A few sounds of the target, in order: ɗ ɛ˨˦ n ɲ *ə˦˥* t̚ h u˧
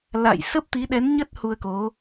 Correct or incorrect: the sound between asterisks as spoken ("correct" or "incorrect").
correct